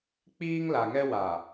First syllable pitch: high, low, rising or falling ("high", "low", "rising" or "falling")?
high